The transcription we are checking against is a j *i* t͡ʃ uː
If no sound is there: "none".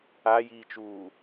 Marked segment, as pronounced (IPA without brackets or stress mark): iː